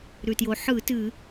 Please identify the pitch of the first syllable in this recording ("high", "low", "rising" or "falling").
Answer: low